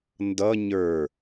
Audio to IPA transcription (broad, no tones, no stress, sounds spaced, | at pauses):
n d ʌ ɲ ə˞